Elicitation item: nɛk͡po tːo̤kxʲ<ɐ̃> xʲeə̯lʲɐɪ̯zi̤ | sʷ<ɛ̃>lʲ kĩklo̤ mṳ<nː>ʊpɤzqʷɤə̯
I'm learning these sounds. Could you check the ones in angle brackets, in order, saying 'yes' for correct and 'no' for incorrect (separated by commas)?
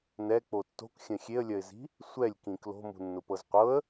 yes, no, yes